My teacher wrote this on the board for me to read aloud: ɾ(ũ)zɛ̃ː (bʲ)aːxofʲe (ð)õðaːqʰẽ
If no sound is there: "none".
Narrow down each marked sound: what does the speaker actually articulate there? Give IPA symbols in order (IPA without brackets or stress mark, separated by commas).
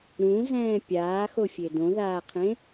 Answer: ũ, pʲ, d